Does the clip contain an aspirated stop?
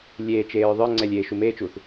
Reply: no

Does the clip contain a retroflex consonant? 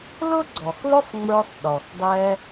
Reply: no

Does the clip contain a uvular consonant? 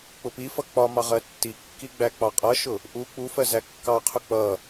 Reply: yes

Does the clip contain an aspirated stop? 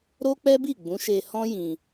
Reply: no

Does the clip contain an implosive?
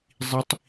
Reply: no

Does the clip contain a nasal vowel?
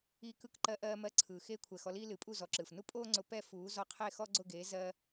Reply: no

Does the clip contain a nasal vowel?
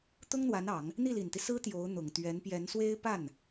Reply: no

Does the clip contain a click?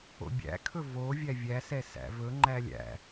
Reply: yes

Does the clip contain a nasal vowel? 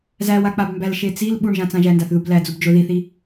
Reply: yes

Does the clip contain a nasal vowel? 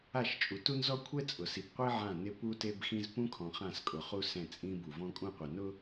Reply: yes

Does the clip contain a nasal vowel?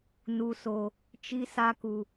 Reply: no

